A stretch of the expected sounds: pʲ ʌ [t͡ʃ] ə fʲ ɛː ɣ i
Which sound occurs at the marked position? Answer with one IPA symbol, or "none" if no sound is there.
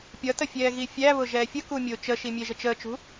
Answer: t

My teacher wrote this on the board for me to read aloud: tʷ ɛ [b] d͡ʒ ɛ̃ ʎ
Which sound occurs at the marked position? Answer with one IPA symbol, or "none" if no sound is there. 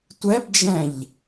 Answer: b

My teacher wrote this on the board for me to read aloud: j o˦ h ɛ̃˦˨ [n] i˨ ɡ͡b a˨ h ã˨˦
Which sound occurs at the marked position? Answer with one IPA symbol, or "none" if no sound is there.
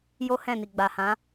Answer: n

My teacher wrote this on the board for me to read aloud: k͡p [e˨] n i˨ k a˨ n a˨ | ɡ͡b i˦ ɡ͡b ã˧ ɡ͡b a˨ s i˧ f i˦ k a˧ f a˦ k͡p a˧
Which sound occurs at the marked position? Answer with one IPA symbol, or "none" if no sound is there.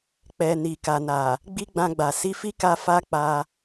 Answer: ɛ˨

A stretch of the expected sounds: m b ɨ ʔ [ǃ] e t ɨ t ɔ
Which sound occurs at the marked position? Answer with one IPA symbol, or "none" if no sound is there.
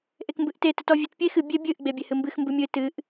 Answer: t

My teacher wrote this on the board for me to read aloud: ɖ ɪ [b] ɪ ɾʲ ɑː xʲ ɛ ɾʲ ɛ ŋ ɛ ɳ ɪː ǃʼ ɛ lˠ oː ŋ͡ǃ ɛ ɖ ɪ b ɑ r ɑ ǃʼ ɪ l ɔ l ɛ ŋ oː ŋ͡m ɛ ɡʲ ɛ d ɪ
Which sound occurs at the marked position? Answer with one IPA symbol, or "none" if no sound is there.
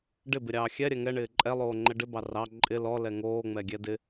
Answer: b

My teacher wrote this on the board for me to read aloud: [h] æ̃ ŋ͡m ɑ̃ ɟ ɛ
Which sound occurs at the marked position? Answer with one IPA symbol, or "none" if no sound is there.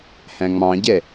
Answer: h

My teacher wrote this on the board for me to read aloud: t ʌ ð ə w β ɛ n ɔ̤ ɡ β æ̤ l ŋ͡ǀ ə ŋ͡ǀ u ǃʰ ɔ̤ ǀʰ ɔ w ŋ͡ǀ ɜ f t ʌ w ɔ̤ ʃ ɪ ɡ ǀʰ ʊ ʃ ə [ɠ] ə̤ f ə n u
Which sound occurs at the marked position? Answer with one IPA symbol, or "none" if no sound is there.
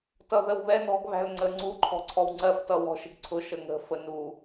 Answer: ŋ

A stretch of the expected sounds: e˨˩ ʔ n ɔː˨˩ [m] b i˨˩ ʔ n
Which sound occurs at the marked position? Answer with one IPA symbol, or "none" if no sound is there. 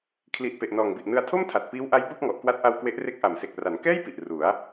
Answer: ŋ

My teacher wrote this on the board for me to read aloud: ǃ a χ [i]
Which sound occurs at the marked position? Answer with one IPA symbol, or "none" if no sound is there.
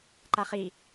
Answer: i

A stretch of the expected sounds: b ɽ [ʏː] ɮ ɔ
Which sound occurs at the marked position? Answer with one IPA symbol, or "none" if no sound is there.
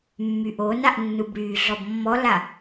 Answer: yː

